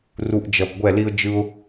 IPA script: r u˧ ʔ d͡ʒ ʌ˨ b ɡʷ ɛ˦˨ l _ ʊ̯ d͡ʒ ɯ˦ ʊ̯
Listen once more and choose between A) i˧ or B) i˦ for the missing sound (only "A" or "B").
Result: B